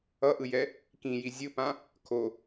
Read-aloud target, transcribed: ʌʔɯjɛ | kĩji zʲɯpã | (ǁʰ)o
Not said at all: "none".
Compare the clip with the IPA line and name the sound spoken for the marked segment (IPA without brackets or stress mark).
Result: kʰ